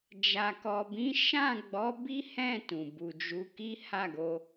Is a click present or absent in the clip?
absent